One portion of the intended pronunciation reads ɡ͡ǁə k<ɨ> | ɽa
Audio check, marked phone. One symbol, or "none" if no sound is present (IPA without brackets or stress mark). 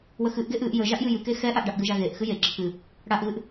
ɨ